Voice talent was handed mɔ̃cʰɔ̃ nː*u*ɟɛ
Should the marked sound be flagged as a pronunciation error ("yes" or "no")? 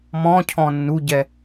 no